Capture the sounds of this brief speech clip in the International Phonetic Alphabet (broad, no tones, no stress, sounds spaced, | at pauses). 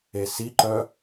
e s i ǃ œ